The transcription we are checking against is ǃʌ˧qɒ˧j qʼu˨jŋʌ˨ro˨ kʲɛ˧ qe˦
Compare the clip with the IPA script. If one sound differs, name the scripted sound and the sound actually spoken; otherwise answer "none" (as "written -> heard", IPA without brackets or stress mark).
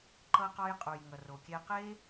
none